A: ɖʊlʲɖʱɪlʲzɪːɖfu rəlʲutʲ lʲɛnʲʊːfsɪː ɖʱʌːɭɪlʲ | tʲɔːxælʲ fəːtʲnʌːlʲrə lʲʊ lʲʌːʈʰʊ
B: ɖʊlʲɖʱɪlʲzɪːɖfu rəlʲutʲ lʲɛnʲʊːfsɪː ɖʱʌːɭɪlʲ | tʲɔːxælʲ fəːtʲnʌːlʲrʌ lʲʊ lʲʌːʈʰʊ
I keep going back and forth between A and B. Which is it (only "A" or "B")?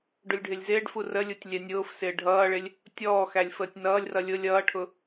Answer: B